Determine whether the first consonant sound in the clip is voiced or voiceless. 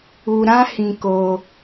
voiced